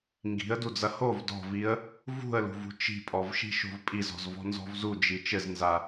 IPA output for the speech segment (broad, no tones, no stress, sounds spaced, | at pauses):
ŋ ɡ i̤ ə̯ d u d͡z ɐ h o v d ɔ̤ v i ə̯ | v ṳ ə̯ l ṳ v ṳ t͡ʃ i̤ pʼ ɔ v ʃ i̤ ʃ o̤ v pʼ i z ɔ̤ z v ɔ̤ n z ɔ̤ v z u d͡ʒ i t͡ʃ ɘ z n z a